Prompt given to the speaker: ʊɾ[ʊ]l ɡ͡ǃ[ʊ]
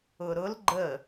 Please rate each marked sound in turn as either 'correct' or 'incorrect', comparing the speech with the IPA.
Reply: correct, incorrect

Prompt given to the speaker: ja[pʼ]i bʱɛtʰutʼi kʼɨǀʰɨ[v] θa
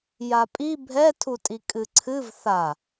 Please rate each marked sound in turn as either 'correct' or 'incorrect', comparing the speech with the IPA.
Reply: correct, correct

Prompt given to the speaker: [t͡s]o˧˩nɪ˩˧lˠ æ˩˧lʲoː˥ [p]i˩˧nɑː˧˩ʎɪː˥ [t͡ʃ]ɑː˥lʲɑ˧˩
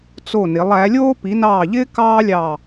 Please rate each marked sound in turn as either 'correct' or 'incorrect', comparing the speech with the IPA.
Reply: correct, correct, incorrect

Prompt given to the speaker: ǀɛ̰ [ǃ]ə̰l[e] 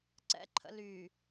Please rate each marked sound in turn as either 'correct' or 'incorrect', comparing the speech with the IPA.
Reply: incorrect, incorrect

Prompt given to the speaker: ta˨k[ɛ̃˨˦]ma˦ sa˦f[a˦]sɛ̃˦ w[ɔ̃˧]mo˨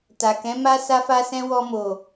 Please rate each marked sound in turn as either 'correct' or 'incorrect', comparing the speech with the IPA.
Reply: correct, correct, incorrect

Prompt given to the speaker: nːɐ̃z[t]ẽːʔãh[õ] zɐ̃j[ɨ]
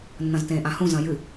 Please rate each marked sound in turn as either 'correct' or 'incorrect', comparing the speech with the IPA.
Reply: correct, incorrect, correct

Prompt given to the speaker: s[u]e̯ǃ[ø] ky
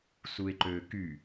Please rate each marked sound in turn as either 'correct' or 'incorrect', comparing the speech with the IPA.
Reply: correct, correct

